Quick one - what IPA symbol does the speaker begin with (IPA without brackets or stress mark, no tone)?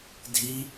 dʱ